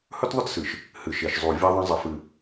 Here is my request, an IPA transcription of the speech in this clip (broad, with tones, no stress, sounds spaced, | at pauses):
h ɵ˦ t ðˤ ɵ˦ t s ɨ˨ ʃ | h ɨ˨ ʃ e˨ ʃ zˤ u˨ vʲ a˦ ðˤ ɐ̃˦ zˤ ɐ˦ f ɨ˦